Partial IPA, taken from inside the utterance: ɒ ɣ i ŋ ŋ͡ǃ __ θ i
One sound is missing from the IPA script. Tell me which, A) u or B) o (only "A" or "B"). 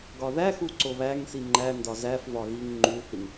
A